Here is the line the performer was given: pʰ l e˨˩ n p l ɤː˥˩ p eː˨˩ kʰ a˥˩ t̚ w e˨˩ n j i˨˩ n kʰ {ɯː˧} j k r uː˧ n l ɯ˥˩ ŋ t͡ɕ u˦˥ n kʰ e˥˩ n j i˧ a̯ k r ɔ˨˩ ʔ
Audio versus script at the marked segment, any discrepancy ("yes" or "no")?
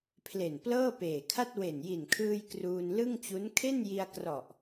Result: no